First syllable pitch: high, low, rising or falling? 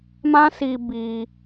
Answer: high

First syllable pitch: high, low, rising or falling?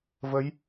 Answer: rising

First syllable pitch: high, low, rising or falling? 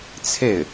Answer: falling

